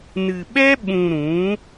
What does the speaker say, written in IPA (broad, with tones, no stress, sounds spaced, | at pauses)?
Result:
n ɨ˨ ɓ ɛ˦ ɓ ũ˨ ɾ ũ˨˦